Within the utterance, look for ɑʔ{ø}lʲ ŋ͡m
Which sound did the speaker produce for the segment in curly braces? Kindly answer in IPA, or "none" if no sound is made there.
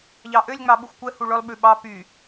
ø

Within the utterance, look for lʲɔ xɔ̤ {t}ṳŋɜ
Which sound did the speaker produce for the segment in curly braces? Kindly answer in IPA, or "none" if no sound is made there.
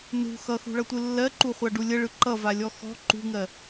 ǃ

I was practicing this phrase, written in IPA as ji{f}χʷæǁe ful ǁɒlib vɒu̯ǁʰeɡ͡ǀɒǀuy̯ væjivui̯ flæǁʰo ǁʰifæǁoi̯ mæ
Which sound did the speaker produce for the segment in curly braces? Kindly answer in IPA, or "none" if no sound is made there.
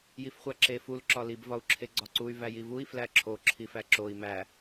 f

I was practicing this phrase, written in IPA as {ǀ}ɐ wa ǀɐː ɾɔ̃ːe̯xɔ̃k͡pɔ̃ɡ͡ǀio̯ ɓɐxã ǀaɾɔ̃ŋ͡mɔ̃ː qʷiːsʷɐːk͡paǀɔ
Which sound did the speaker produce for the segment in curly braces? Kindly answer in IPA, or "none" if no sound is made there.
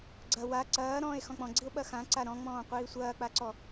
ɡ͡ǀ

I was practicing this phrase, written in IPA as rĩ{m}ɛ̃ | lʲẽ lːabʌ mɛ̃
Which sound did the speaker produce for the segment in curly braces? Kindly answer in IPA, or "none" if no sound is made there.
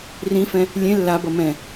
f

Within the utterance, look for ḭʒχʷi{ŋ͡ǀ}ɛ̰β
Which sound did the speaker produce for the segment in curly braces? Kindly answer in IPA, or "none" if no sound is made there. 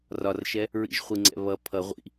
ŋ͡ǀ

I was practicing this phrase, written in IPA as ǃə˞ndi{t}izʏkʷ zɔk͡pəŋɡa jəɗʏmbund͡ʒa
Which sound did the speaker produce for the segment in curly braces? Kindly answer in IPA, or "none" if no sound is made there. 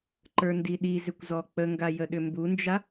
ɗ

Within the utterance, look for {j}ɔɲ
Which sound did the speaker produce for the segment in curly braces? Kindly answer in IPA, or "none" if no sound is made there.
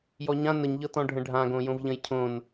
j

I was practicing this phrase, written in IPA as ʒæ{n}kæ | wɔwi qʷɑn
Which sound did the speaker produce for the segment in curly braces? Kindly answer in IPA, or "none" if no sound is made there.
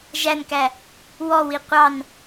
n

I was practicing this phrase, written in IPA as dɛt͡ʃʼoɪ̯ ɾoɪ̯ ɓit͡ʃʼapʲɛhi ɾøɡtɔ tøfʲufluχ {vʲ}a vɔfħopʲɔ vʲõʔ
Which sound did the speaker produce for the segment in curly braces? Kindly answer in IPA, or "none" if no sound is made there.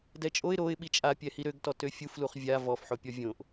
vʲ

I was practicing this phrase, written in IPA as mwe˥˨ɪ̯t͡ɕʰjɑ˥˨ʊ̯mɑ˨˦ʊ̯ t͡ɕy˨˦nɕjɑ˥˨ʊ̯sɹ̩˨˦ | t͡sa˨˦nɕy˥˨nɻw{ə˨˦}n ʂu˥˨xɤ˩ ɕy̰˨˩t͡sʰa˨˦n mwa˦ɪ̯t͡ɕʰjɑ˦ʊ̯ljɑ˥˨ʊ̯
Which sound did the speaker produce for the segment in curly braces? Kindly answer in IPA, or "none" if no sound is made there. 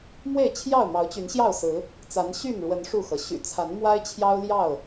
ə˨˦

